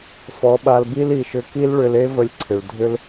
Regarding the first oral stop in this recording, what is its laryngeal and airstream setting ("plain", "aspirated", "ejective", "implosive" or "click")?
implosive